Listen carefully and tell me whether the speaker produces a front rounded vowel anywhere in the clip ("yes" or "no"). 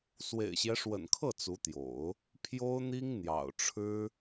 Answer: no